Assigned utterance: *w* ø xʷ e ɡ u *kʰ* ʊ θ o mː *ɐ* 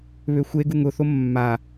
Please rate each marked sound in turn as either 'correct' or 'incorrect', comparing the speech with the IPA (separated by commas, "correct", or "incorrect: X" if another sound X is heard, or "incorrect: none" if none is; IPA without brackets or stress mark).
incorrect: β, incorrect: ŋ, incorrect: a